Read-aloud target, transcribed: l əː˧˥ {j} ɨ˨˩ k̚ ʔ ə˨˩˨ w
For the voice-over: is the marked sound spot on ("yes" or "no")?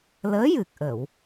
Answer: yes